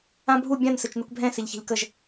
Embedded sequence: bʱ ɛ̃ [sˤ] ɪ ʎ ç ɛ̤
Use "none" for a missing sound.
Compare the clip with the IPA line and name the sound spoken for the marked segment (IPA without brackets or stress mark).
s